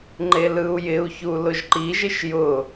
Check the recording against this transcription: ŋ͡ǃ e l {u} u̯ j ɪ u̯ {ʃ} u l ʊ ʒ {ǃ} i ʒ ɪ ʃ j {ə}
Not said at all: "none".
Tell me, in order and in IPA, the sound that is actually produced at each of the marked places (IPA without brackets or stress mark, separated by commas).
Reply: ɯ, ç, ǃ, ʊ